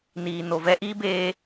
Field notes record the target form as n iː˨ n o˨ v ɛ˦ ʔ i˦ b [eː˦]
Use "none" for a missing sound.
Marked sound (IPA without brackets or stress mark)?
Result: eː˦